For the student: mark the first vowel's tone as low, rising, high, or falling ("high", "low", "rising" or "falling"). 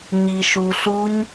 low